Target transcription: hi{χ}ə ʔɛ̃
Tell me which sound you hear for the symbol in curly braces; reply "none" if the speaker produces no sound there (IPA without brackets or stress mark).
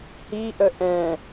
ʔ